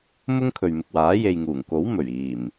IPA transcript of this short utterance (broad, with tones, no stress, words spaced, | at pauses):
mʊ˥ŋkʰɵ˨ɥmɪ˨k̚waː˨˥ je˨jŋuː˨˩ŋko˨˥w mɵ˨˩ɥ iː˨˩m